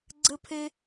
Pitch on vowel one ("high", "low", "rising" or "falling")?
high